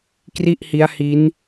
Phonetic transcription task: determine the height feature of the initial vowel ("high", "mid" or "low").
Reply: high